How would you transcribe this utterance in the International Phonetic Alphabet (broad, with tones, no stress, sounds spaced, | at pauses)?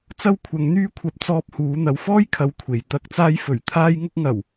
t͡s ɐ˥ w kʷʰ ɐ˨˧ ŋ n̪ yː˥ kʷʰ ɐ˧ p̚ t͡s ɔː˧ p̚ h uː˨˧ n̪ ɐ˨˧ w f ɔː˥ j kʰ ɐ˨˧ w kʷʰ e˨ j t̪ ɐ˧ k̚ t͡s aː˧ j f ɵ˨˩ ɥ t̪ʰ aː˧ j ŋ ʊ˧ k̚ ŋ ɐ˨˩ w